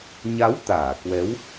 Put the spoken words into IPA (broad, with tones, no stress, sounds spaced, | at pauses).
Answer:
ɲ a˨˦ w t̪ aː˧˩ k w ɛ˨˦ w